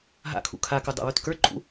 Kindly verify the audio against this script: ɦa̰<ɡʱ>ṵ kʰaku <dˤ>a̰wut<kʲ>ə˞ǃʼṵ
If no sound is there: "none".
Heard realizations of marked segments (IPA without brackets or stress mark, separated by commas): kʰ, dˤ, k